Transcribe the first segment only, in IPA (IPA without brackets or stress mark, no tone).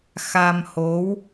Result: x